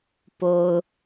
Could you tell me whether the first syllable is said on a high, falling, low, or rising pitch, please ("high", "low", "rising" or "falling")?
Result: low